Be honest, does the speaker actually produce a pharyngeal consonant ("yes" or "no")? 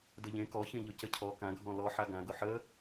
yes